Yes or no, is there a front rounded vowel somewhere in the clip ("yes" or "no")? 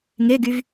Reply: yes